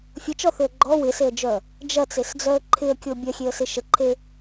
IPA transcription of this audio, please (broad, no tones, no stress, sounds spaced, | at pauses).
fʲ ə t͡ʃ ɔ θ ʏ ə̯ ɡ͡ǃ ɔ w ɪ s e ə̯ d͡ʒ œ | d͡ʒ ɐ t͡s e s d͡z œ ə̯ ǃʰ ɪ ə̯ kʲ o bʲ ɐ xʲ e ə̯ s ɪ ʃ ə ǃʰ e